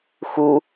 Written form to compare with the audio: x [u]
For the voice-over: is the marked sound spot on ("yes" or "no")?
yes